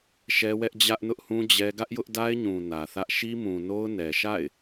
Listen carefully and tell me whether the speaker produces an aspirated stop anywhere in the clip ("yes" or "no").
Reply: no